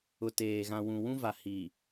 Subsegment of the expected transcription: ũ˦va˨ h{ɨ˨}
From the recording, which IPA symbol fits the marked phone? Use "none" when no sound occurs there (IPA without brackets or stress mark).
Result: i˨